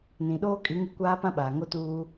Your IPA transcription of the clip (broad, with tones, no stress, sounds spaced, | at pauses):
n ĩ˨ ɗ oː˦ kʼ i˨˦ ŋ i˦ kʷ aː˦ p ã˦ ɓ aː˨ ŋ o˦ t uː˦